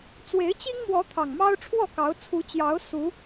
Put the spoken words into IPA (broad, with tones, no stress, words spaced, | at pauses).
t͡swe˨˦ɪ̯t͡ɕi˦ŋ mwɔ˨˦ t̪ʰɑ˨˩ŋmɑ˦ʊ̯ʈ͡ʂʰwɔ˥˨kɑ˨˦ʊ̯ t͡sʰu˨˦t͡ɕjɑ˨˦ʊ̯ su˨˦